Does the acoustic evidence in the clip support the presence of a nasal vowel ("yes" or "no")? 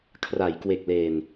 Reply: no